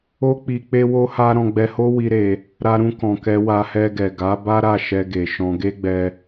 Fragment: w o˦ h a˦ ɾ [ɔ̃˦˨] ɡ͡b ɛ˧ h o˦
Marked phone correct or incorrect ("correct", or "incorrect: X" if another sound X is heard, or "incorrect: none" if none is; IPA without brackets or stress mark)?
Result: incorrect: ɔ̃˧